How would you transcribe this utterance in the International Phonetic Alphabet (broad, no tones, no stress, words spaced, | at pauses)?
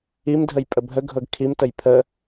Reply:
imdʱəjpʼə bʱəɡʱɤɡ kʰimtəj pʰə